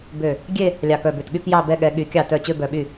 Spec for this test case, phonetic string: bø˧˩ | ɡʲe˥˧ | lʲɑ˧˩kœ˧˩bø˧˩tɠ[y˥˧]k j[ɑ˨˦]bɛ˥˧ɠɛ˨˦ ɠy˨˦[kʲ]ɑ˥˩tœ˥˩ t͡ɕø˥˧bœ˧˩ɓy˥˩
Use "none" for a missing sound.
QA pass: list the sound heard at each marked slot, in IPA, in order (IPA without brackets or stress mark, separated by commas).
y˥˧, ɑ˥˧, kʲ